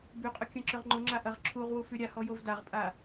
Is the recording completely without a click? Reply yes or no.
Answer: no